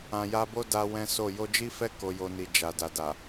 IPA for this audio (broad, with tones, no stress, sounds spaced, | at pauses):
ã˨ j a˧ b o˦ d a˦ w ɛ̃˦ s o˦˨ j o˧ d͡ʒ i˦ f ɛ˦ k o˧ j o˧ n i˨ d͡ʒ a˨ d a˨ d a˨